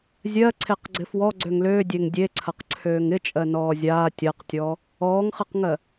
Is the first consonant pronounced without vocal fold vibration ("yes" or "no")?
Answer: no